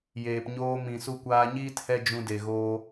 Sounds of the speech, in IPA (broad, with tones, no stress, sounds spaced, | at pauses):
j eː˨ p ɲ oː˧ m ĩ˨ s u˧ kʷ aː˧ ɲ iː˦ t h ɛ˦ d͡ʒ ũ˧ d e˨ ɣ oː˧